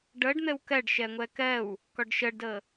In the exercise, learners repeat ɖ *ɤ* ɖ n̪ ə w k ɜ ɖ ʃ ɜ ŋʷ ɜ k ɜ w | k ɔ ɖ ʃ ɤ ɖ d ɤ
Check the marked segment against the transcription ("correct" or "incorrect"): correct